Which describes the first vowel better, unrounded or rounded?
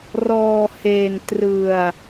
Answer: rounded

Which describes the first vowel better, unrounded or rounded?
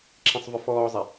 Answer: unrounded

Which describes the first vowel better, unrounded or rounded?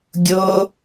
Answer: rounded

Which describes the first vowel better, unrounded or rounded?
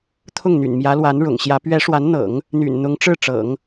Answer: rounded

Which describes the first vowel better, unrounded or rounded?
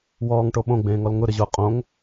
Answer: rounded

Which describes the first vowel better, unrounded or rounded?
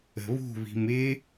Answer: unrounded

